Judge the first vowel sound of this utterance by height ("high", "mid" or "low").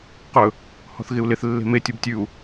mid